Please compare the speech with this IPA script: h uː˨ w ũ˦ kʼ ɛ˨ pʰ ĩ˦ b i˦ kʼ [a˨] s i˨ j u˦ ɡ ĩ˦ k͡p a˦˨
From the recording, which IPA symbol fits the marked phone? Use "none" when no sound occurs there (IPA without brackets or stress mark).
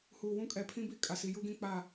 a˨